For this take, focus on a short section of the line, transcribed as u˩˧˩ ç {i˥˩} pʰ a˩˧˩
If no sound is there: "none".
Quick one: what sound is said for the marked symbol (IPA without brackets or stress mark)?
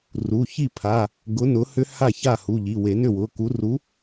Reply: i˥˩